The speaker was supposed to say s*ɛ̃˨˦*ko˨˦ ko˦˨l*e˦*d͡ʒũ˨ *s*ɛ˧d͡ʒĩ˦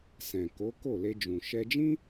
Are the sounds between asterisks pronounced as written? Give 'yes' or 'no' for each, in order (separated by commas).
no, no, no